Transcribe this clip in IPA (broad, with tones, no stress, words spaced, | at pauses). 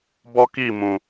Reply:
bɔ˦ki˦˨ mũ˨